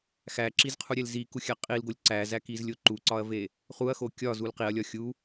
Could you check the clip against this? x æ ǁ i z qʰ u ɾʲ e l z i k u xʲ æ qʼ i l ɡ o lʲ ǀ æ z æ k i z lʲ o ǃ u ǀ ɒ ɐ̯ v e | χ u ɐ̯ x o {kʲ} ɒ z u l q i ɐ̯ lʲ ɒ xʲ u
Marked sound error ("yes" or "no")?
no